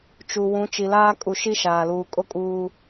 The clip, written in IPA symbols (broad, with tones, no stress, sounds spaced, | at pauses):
t͡ʃ u˨ w ũ˨˦ t͡ʃ i˨ l aː˦ kʼ u˨ ʃ i˦ ʃ aː˨ l uː˨ kʼ o˦ kʼ uː˨